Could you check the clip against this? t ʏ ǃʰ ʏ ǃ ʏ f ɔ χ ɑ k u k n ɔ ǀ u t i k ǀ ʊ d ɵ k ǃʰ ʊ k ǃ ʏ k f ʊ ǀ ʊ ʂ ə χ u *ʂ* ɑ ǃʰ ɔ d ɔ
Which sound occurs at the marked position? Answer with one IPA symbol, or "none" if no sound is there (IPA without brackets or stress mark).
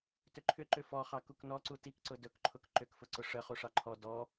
ʂ